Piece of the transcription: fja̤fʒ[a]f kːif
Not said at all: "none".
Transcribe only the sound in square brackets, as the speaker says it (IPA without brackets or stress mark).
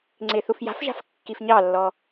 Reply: a̤